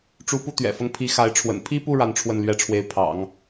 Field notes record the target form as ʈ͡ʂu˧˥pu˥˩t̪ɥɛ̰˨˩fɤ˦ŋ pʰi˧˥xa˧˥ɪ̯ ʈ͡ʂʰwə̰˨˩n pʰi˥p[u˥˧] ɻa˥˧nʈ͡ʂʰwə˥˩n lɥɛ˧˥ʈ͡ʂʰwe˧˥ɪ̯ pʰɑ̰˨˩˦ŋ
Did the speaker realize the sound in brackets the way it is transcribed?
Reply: yes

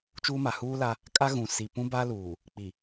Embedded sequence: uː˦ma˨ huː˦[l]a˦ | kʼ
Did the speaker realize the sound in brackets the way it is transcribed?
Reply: yes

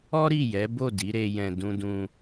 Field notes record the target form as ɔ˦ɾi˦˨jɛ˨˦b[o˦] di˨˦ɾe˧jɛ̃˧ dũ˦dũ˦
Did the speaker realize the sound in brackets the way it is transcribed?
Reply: no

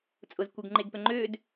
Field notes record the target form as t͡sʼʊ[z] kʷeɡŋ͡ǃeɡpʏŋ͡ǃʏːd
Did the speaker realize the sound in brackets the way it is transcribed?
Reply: yes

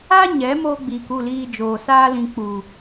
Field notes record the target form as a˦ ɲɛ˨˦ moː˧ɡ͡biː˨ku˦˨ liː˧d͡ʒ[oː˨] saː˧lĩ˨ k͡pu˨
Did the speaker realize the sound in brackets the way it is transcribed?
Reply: yes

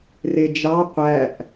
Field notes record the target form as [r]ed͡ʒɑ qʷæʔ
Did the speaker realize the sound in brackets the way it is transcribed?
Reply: yes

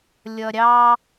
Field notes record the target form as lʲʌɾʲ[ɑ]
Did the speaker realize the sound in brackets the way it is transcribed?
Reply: yes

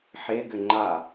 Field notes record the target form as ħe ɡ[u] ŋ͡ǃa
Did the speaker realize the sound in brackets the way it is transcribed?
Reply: no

